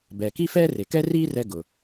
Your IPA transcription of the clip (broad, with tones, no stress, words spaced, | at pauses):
bɛː˩ki˥fɛː˥ re˩kɛ˥riː˥rɛ˧ ɡʊ˩